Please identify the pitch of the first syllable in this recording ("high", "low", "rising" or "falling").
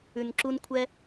low